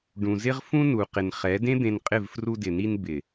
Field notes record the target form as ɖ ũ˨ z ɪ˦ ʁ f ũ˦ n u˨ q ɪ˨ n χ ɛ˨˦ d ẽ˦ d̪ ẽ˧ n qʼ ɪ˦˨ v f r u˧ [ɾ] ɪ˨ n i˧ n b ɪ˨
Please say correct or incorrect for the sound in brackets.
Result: incorrect: d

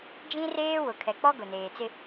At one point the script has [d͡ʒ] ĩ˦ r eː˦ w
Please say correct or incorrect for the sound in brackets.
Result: correct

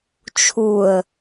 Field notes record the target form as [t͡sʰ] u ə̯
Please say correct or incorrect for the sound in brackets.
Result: incorrect: t͡ʃʰ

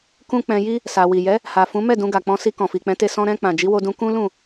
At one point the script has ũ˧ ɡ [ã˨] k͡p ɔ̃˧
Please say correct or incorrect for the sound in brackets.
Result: incorrect: a˨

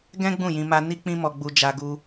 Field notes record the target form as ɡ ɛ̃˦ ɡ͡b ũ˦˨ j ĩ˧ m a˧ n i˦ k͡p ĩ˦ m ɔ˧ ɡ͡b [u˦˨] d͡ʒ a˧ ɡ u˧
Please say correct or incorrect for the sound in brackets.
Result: incorrect: u˧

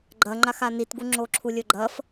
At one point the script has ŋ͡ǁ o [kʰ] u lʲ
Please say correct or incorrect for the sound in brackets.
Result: incorrect: ǁʰ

